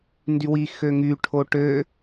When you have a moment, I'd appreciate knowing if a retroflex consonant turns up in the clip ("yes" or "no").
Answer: yes